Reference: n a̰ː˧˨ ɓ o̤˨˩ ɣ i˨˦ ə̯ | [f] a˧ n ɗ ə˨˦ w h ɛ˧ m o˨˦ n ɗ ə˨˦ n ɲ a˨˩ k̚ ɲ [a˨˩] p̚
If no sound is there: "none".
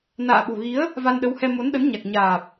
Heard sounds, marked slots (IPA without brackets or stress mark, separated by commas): v, aː˨˩